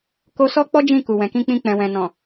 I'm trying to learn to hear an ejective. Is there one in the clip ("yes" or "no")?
no